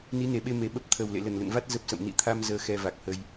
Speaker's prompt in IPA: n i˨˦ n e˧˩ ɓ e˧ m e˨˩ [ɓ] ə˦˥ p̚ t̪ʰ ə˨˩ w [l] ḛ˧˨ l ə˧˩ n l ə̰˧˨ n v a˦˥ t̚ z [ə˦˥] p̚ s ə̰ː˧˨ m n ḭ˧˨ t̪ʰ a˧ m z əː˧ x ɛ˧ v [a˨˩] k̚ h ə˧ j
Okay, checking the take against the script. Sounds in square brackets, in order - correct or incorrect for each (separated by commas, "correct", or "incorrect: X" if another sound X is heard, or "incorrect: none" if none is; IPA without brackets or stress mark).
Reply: correct, correct, correct, correct